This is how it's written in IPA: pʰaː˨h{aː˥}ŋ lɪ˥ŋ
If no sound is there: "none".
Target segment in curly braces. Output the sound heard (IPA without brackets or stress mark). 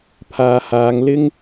aː˨˧